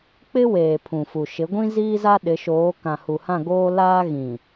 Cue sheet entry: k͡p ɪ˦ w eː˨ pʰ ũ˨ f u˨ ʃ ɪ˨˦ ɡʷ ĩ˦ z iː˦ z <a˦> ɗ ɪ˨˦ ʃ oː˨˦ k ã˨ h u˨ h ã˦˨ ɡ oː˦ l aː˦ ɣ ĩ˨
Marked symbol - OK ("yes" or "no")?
yes